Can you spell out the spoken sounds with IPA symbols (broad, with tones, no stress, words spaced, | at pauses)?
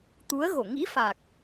t̪u˨˦ə̯ɣo˧˩ ŋḭ˧˥fa˨˩k̚